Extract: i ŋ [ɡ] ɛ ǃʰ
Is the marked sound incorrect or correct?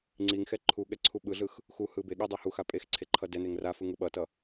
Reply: incorrect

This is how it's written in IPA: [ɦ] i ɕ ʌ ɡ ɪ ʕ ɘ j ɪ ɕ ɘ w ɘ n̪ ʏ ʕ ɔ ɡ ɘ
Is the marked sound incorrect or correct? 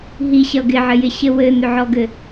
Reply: correct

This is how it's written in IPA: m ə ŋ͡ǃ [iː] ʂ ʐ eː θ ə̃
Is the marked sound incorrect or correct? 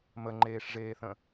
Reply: incorrect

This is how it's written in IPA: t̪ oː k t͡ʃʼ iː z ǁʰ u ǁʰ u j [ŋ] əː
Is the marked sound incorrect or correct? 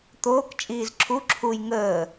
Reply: correct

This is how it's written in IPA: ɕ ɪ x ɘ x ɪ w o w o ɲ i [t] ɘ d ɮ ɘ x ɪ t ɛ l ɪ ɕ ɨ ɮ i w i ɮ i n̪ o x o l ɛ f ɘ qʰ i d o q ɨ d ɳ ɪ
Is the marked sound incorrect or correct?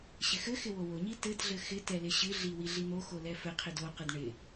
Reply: correct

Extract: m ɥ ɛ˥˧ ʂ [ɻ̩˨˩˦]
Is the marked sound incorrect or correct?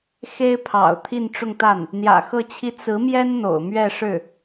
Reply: incorrect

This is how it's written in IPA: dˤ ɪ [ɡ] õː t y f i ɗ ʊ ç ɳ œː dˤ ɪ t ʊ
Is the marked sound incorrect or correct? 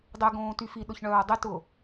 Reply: correct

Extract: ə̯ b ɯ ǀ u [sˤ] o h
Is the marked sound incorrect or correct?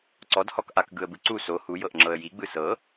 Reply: incorrect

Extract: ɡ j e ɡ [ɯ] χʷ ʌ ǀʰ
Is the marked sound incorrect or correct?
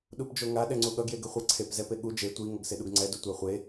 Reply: correct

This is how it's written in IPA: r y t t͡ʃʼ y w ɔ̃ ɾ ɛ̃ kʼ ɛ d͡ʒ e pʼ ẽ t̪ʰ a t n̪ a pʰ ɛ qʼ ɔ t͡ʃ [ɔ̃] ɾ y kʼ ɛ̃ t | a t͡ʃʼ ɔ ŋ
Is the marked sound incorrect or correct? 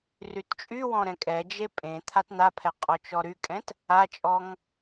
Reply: incorrect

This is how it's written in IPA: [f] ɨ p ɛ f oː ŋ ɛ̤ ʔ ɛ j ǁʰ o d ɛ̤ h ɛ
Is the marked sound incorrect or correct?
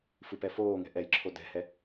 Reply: correct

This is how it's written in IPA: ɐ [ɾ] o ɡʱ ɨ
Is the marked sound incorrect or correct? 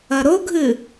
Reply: correct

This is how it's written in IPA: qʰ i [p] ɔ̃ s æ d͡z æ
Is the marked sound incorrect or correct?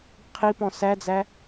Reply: correct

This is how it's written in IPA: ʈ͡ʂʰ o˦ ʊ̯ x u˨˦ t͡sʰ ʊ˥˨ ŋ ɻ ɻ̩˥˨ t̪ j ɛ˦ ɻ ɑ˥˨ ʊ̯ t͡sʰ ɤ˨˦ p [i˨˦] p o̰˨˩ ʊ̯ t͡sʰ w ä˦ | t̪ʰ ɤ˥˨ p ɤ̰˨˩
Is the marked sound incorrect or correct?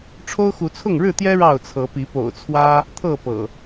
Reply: correct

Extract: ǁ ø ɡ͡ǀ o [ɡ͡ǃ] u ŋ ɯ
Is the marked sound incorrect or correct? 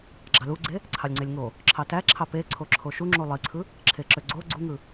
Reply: incorrect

